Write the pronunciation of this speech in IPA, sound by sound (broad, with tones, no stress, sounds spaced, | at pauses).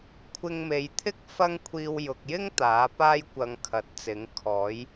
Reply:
kʷʰ ɪ˧ ŋ m e˨˧ j t̪ʰ ɪ˥ k̚ f ɐ˥ ŋ kʷʰ iː˧ w j ʊ˨ k̚ j ɪ˥ ŋ t̪ aː˨˥ p aː˥ j kʷ ɐ˧ ŋ kʰ ɐ˨˥ t̚ t͡s ɪ˨˥ ŋ kʰ ɔː˨˥ j